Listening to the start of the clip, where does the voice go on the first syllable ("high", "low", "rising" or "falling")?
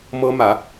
high